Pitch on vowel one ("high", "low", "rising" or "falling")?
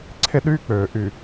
high